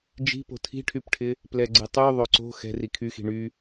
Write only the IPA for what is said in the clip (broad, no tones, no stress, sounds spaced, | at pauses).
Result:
d͡ʒ i̤ p o̤ tʰ i̤ ʈʰ y p ʈʰ ɪ | p l ɛ ɡ͡ǀ ɪ tˤ y ðˤ o ǀ o̤ x ɛ̤ r i kʰ y x i̤ ɳ y